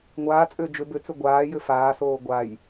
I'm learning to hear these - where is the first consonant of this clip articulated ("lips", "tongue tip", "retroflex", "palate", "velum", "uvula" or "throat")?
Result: velum